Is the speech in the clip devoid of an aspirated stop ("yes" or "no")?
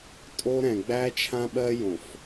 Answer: no